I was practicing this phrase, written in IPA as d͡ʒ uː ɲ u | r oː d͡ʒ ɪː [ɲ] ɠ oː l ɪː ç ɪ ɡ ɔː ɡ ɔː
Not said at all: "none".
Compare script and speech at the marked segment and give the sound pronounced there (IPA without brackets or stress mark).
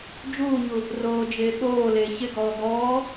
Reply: none